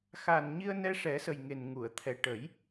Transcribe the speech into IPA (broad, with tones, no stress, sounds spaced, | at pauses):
x a˨˩ n ɲ i˧ ə̯ n ɛ˧ ʂ ɛ˨˩˦ s ə˨˩ j ŋ e˨˩ n ŋ u˨˩˨ ə̯ t̪ʰ ɛ˨˩ ʈ ə˨˩˦ j